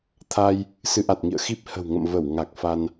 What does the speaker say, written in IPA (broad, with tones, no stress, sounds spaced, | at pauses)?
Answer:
t̪ʰ a˧ j | s ɨ˨˦ ʔ a˨˩ t̚ ŋ ḭ˧˨ ə̯ x i˦˥ p̚ h ə̤˨˩ w ŋ ə̰˧˨ m v ə˧˩ w ŋ a˨˩ k̚ f a˧ n